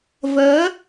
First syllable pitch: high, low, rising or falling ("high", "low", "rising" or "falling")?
rising